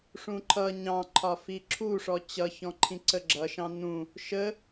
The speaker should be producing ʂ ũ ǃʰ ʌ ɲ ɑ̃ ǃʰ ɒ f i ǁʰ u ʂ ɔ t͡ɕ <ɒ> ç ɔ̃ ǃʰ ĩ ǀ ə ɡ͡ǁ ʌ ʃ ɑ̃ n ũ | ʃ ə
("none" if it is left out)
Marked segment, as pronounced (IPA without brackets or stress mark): ʌ